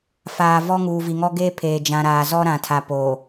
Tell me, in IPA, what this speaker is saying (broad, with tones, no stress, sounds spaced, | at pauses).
f aː˨ v ɔ˦ ŋ uː˨ v i˨ ŋ ɔ˦ ɡ e˦ pʰ eː˨ d͡ʒ ã˨ ɾ aː˨ z ɔ˦ ɾ ã˨ tʰ a˨ p oː˨